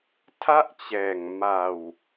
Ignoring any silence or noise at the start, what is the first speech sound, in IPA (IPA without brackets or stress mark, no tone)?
tʰ